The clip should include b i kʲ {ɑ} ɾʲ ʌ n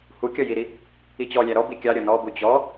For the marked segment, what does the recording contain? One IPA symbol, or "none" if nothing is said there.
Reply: ɑ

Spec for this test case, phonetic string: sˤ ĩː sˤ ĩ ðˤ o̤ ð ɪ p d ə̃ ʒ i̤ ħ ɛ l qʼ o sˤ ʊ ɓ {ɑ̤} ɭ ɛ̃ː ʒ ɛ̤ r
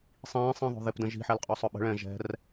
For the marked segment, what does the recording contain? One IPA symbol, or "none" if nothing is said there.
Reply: ə̤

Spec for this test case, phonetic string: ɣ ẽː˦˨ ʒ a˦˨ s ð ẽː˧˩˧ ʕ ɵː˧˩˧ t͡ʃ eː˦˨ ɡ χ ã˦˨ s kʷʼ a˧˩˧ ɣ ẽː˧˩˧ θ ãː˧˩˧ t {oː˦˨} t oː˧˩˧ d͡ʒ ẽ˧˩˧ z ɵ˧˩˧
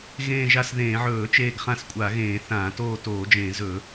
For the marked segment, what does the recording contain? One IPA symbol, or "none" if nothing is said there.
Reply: oː˦˨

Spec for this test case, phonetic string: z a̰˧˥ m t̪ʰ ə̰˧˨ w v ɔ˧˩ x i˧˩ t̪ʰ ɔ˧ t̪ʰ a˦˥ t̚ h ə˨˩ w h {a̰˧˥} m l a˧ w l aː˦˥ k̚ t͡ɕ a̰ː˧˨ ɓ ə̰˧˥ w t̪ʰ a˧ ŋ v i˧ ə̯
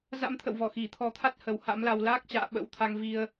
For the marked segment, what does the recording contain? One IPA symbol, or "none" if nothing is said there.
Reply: a̰˧˥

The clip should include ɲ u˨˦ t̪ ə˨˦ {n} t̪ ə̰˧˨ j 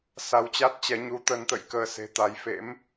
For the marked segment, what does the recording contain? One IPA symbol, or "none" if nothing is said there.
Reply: n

